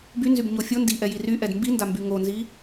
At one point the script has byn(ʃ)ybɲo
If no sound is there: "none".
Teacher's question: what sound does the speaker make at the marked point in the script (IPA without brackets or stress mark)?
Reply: z